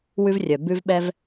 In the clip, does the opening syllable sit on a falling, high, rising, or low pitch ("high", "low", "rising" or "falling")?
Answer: high